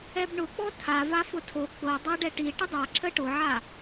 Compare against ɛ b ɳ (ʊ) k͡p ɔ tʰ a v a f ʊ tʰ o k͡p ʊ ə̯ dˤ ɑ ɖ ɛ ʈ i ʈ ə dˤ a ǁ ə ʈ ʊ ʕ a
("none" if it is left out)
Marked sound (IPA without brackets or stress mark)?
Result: ʊ